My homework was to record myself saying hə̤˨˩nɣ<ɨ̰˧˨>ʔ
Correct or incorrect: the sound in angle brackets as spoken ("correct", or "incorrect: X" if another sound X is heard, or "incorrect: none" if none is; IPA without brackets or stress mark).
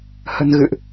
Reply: correct